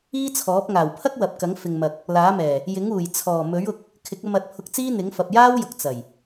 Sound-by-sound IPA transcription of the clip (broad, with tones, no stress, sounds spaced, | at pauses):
iː˥ t͡sʰ ɔː˨˥ p̚ ŋ aː˨˩ w pʰ ɐ˥ k̚ w ɐ˨ p̚ k ɐ˨˥ ŋ f ɪ˨ ŋ m ɐ˨ k̚ | l aː˨˥ m ɛː˨˩ | j ɪ˨˥ ŋ uː˨˩ j t͡sʰ ɔː˨˩ m ɵ˨˥ ɥ ʊ˧ k̚ | kʰ ɪ˨˥ k̚ ɐ˧ m ɐ˨˥ t̚ pʰ ʊ˧ k̚ t͡s iː˥ n̪ ɪ˨˥ ŋ f ɐ˨ p̚ j aː˥ w j ʊ˨ k̚ t͡s ɐ˨˩ j